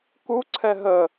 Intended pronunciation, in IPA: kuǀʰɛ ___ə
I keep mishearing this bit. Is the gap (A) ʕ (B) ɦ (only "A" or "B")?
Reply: B